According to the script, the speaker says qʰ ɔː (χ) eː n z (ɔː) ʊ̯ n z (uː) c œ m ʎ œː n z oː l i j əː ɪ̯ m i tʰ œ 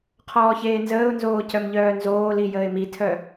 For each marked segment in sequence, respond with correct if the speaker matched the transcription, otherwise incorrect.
incorrect: ç, incorrect: əː, incorrect: oː

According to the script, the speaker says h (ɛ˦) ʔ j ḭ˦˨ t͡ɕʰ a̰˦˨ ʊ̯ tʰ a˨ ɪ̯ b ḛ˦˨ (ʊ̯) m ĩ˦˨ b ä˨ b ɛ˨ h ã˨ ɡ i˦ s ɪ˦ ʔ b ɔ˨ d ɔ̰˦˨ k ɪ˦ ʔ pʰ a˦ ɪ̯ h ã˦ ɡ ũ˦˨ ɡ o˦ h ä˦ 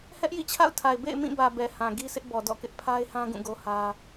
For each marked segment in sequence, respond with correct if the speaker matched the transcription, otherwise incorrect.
correct, incorrect: ɪ̯

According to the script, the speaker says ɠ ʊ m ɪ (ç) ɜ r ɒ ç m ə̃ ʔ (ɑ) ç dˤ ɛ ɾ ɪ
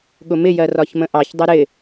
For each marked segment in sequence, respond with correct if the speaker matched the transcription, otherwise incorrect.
incorrect: j, correct

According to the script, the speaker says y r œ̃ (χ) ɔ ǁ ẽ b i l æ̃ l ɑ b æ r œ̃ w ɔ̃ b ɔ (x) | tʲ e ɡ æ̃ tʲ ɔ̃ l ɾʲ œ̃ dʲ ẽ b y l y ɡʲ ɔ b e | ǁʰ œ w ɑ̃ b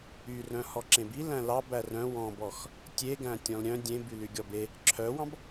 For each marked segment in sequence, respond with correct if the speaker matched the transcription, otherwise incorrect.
incorrect: h, correct

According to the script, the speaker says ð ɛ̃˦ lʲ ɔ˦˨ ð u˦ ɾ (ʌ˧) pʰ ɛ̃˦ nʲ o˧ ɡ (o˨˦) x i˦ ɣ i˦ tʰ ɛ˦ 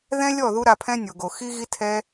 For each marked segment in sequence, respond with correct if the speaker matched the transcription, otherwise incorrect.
incorrect: a˧, incorrect: o˧

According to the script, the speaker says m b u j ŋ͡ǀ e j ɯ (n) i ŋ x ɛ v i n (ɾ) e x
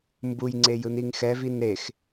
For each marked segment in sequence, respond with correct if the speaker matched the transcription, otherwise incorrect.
correct, correct

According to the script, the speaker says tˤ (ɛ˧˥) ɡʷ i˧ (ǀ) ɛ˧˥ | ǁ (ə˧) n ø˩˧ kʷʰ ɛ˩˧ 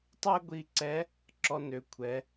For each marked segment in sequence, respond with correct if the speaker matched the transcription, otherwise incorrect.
incorrect: ɛ˥, correct, incorrect: ɔ˧

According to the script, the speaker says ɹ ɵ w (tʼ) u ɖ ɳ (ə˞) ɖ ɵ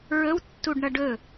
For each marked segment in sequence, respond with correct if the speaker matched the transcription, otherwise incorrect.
incorrect: tː, incorrect: ʌ

